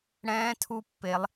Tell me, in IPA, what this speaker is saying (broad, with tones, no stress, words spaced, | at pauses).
ɽɛ̃ː˧˥tʰu˧pːe˩˧lˠ